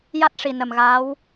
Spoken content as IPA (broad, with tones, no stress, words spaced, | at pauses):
ja˦˥t̚ʂi˨˩ nə˨˩mɣaː˧˥w